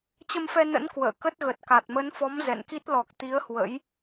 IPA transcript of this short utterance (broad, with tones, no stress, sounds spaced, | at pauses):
t͡ɕ ə˧ m f ɛ˧ n ə̰˧˥ n k w ə̰ː˧˨ k ə˦˥ t̚ ɣ ə˨˩ t̚ k a˨˩ t̚ m ə˨˦ n f ɔ˨˦ m z ɛ̰˧˨ n k i˦˥ t̚ l ɔ˨˩ k̚ t̪ i˨˦ ə̯ h w ə̰˧˥ j